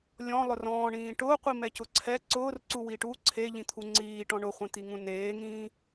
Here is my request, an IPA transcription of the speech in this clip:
lʲ ɔ̃ lˠ ʊ r ɔ̃ː ɳ ĩː ʈ ʊː qʷ i m ɛ c ʊ ǀʰ ɛ ǀ ʊː r ǀ u w iː ʈ u ǀʰ e ʎ ĩ t̪ʰ u ŋ͡ǀ iː ʈ ɔ̃ ɳ ʊ χʷ ẽ t̪ i ŋ ũ n eː ŋ ĩː

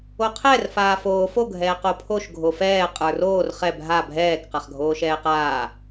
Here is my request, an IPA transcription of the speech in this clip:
o qʰ ɛ r f aː f oː f o ɡʱ ɛː q o pʰ o ʃ ɡʱ o f ɛː qʼ ə˞ r oː r χ ɛ bʱ a bʱ ɛː k q a χ ɡʱ oː ʃ ɛː q aː

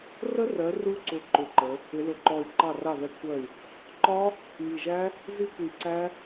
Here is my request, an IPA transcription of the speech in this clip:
r ə˦˥ r ɜ˨˦ r u˦˥ ǀ ʊ˧˩ ǃ ʊ˧˩ ǃ ə˨˦ | ɪ˨˦ l ʊ˧˩ ǃ ɔ˧˩ y̯ ǃ ɑ˧˩ r ɑ˧˩ ð ɛ˨˦ kʷʰ ɜ˧˩ y̯ | ǃ ɒ˦˥ | m i˧˩ ʒ æ˦˥ | z i˦˥ kʷ i˧˩ ǀ æ˦˥

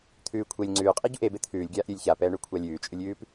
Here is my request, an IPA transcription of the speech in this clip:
t̪ʰ ʉː kʷʰ e lʲ ŋ͡ǀ ʉː qʼ i ɟ u ʔ e b e t̪ʰ ʉː lʲ ɡʲ aː ʔ ɾʲ ʉ lʲ ç a p ɛː ɳ ʉ kʷʰ a lʲ ʉː t͡ʃʼ ʉ lʲ ʉː p

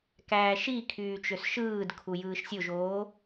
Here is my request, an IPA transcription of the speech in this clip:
k æː ʃ i kʰ yː t͡ʃ ø s ʃ ɯː d kʰ u j ɯː ʃ sʲ o ʒ oː

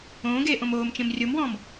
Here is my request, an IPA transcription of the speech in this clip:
õː ɡ eː ʔ õ m oː m t͡ʃ ẽ m rʲ o m w ɔ̃ː m

